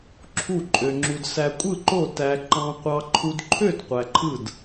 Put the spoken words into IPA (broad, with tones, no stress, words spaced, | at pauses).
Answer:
ǁʰu˥˨ǃʼø˧ŋ͡ǁu˧d sæ˧kʷʼɯ˥˨ ǃo˥˨tæ˧ ǃɑ̃˧qʷɑ˧ ǃʰu˧dǃʰø˥˨d qʷæ˧ǃʰɯ˥˨d